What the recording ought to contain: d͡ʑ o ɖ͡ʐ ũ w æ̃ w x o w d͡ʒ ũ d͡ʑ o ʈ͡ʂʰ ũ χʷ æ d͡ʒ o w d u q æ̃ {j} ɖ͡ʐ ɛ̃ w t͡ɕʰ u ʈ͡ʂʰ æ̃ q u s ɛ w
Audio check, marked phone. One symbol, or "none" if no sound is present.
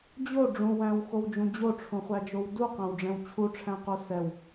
w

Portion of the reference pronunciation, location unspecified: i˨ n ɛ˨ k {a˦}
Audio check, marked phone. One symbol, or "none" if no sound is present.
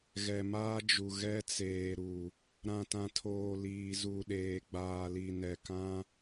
ã˦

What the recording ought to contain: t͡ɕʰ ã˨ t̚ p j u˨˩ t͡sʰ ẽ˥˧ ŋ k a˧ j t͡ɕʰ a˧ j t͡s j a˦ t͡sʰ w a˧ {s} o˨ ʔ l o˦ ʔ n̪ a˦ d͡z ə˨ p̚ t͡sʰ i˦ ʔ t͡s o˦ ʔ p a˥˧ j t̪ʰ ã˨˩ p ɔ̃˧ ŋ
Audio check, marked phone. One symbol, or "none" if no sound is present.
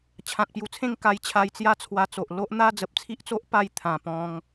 t͡s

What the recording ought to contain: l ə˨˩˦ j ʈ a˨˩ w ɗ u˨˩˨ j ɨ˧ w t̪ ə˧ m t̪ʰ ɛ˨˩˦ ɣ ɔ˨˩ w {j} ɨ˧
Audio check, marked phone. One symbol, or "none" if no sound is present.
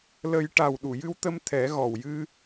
j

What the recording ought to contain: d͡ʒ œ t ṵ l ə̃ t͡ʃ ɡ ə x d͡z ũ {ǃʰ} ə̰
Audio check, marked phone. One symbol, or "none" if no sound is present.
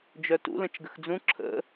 ǁʰ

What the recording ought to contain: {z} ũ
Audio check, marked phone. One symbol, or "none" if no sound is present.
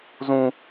z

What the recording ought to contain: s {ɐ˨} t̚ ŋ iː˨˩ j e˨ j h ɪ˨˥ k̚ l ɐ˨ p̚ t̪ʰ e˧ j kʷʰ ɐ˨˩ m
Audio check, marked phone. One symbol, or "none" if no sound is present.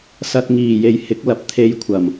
ɐ˨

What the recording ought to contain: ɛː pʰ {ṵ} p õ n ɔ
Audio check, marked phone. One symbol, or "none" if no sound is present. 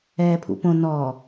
ṵ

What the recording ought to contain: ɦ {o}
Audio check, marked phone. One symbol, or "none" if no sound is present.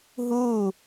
u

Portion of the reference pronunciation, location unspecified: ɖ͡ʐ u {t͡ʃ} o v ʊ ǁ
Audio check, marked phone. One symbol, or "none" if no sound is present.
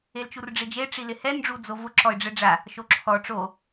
d͡z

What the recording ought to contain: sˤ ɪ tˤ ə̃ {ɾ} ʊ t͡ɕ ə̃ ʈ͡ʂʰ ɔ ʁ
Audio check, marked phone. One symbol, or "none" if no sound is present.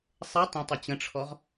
tˤ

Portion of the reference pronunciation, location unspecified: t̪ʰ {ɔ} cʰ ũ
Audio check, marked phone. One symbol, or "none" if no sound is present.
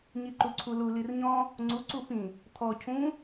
ɔ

